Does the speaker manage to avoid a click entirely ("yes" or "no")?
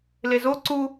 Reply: no